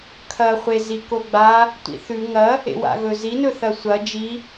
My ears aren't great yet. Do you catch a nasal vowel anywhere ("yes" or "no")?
no